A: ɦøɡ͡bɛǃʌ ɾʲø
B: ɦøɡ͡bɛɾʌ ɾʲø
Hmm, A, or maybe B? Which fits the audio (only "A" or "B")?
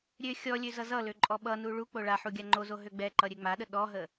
A